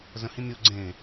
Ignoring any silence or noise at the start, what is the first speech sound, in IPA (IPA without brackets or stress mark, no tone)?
z